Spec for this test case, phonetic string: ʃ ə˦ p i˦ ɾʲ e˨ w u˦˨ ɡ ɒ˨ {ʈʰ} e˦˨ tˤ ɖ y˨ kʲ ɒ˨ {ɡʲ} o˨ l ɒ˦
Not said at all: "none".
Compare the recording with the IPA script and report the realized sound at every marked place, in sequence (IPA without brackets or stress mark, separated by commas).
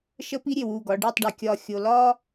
ɖ, xʲ